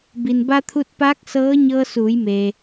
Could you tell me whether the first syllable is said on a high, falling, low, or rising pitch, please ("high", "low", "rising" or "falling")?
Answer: low